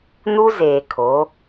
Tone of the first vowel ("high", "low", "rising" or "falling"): high